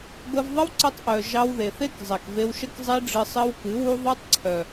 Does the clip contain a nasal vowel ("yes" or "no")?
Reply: no